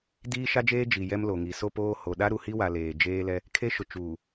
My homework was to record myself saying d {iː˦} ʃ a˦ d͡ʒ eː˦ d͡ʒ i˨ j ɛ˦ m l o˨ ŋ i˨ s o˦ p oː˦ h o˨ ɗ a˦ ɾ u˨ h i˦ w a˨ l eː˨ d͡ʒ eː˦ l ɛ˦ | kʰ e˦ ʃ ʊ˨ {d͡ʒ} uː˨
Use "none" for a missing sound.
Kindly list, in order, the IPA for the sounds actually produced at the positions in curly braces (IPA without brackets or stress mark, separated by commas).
iː˦, t͡ʃ